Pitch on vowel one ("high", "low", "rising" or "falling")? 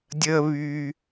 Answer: high